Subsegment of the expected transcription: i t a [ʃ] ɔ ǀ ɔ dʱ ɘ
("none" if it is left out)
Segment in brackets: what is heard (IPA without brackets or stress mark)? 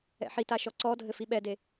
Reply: ʃ